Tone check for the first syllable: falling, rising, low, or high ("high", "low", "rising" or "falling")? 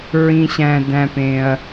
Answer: low